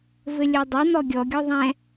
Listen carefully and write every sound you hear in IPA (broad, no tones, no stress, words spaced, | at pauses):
vɘlʲodˤo n̪ɔɡʲɔ ɡʲɔðˤɛ̃